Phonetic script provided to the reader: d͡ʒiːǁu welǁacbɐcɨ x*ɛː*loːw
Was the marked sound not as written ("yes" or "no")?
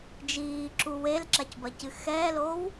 no